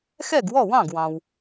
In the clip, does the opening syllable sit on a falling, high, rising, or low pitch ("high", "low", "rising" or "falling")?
falling